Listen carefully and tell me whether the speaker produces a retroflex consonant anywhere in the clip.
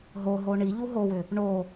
yes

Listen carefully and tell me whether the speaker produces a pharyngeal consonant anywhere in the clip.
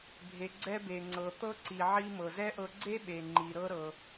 yes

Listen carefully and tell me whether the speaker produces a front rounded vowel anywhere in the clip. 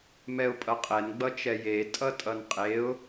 no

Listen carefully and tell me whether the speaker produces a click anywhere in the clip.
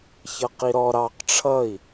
no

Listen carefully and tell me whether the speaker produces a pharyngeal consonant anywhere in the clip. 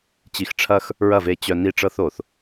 no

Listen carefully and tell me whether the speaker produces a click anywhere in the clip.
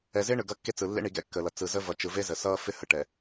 no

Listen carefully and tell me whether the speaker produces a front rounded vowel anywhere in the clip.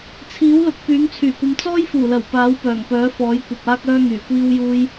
yes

